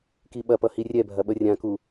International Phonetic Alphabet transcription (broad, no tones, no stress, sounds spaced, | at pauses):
k i ɓ ɐ p ʌ h i rʲ ɛ bʱ ɐ ɓ ə rʲ ã k u